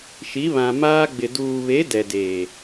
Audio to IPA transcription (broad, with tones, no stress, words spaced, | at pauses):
ʃi˨˦βã˨maː˦ɡ͡bɪ˨ duː˨βe˨˦ dɛ˨deː˨